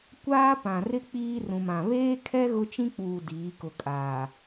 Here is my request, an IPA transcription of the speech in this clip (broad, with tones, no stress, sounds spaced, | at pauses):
kʷ aː˦ p ã˨ r ɪ˦ k͡p iː˦ r ũ˨ m ã˨ β eː˦ kʰ ɛ˦ ɣ ʊ˦ t͡ʃ ĩ˦ k͡p uː˨ d iː˨˦ k ʊ˨ kʼ aː˨